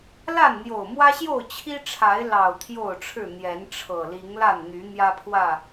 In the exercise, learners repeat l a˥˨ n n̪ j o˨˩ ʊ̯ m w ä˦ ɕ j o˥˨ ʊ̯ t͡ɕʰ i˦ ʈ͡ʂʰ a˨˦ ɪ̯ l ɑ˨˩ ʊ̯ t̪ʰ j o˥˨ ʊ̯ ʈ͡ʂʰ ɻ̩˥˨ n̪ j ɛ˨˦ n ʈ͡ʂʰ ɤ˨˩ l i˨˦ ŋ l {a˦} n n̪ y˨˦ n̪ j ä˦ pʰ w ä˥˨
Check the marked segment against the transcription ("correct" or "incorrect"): incorrect